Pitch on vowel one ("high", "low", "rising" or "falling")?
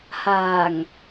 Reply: low